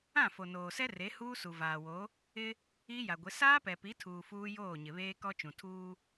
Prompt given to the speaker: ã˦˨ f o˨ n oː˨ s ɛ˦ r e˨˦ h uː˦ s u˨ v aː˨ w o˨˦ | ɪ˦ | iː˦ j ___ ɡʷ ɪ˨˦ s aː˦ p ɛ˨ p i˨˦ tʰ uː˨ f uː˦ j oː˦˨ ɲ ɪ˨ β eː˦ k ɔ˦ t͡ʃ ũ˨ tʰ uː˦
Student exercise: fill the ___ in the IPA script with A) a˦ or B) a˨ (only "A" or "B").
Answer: B